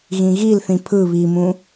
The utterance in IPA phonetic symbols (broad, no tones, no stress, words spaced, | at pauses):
ɣĩɣilθĩ pʰɯ βimũ